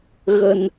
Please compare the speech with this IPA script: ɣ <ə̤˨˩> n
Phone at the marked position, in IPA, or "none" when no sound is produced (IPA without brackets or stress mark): ə̤˨˩